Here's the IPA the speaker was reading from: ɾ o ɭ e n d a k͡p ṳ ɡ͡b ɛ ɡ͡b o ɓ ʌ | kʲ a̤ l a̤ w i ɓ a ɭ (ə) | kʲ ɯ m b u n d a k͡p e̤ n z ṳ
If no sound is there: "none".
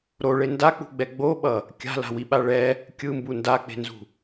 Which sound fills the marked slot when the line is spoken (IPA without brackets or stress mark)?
ɛ